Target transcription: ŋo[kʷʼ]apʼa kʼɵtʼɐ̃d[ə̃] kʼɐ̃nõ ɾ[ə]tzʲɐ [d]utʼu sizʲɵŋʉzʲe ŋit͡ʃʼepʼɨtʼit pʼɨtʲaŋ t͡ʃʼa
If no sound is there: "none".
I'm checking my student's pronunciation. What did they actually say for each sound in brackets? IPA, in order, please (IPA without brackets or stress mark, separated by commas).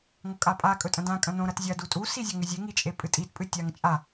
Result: kʼ, ã, ɐ, d